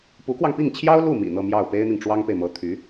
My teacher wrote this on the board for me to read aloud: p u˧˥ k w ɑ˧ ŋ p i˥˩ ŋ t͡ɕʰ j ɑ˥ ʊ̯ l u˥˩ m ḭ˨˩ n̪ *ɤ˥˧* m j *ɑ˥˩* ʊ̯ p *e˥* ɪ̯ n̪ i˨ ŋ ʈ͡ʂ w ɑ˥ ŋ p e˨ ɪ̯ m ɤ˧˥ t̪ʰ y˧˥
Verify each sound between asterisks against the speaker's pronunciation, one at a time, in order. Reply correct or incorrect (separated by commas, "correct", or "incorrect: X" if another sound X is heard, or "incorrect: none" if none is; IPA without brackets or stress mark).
correct, correct, correct